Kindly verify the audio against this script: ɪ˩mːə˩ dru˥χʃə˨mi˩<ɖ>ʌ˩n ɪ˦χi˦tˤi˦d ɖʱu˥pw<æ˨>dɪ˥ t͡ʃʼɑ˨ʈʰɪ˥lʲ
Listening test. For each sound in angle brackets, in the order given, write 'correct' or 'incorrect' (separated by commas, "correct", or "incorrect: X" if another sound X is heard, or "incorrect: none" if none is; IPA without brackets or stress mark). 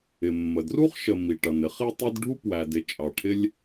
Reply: incorrect: ʈ, correct